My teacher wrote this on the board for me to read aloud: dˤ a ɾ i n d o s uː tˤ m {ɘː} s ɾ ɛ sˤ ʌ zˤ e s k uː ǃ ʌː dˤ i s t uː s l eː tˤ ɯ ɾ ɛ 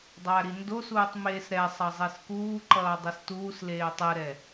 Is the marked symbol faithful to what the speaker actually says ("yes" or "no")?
no